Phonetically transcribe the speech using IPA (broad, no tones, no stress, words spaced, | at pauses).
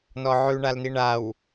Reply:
nɔʕʉɳalni ɳaw